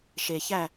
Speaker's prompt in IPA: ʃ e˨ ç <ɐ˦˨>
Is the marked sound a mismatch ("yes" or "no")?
yes